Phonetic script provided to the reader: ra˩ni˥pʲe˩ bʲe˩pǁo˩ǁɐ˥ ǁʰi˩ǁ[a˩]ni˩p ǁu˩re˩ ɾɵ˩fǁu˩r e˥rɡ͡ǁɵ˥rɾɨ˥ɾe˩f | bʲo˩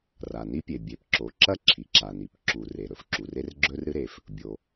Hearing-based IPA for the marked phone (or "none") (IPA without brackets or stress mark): a˩